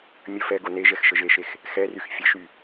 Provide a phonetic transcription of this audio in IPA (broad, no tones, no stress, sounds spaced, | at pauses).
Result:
mʲ ə f ɛ ɡ o n e ʒ ɛ x ʃ ə ʒ e ʃ e x | x ɛ r y x fʲ ə ʃ y